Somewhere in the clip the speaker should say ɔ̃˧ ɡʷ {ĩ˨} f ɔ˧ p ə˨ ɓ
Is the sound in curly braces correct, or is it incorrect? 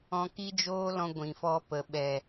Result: correct